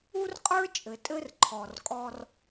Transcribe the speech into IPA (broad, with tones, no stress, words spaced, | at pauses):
u˦rqʼə˞˦ t͡ʃʼɘ˨tʼɘ˦rǃʰɔ˨r kʼɔ˦r